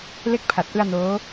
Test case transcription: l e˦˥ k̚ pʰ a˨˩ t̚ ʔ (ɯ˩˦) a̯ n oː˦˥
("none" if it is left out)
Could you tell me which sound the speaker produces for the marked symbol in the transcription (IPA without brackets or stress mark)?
ɯ˧